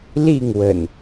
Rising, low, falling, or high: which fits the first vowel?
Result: falling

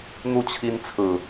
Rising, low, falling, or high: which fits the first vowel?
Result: falling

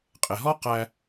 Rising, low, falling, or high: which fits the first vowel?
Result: low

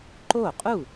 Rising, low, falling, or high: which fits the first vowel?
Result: falling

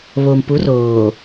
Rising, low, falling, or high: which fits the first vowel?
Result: low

